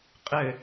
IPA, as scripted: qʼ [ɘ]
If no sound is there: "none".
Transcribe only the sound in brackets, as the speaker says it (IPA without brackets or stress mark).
ɘ